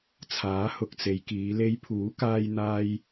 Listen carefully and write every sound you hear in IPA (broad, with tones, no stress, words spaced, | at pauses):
t͡sʰaː˨˥hʊ˨k̚t͡se˨˧jkiː˨˧ le˧jpʰuː˨˥kaː˧j n̪aː˧j